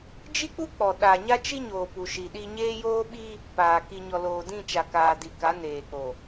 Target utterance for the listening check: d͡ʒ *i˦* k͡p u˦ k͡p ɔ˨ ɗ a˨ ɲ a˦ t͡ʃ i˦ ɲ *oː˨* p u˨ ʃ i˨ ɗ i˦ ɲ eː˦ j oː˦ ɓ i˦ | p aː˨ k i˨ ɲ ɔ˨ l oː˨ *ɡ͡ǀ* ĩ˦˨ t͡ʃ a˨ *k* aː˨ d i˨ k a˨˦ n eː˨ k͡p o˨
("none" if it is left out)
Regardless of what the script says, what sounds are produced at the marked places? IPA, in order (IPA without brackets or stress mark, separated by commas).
i˦, oː˨, d, k